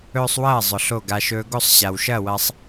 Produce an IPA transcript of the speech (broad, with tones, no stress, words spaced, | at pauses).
ɵː˧sˤwɐː˦˨ zˤʊ˨ɬo˦˨ɡa˧ʃɵː˦ ɡo˦˨sˤɕa˨w ʃɐː˦˨wɐ˧sˤ